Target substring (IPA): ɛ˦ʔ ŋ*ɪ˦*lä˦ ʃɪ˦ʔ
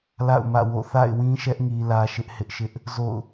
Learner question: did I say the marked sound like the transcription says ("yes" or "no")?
no